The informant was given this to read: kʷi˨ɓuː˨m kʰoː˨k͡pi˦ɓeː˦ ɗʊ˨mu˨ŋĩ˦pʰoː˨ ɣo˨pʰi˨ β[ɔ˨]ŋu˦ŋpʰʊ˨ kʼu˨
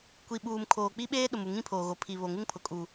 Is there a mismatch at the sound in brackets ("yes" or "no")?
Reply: yes